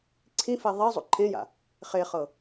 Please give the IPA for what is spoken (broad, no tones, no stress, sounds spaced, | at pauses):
ǀʰ ĩ f e ðˤ i zˤ ṵ ǃʰ ẽ j a̰ | χ e χ ɤ